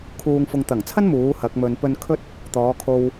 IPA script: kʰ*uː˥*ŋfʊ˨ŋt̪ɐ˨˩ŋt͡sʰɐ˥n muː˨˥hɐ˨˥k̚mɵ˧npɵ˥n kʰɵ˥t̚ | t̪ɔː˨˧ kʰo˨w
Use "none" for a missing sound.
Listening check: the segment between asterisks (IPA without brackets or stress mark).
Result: uː˨